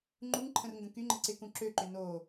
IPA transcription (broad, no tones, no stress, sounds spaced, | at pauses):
ŋ͡ǃ u ŋ ǃʰ ə̃ r ŋ ɡ ə̃ k y ŋ͡ǃ ɪ ǀ ɪ k ũ ǁ ø ǃ ʏ n o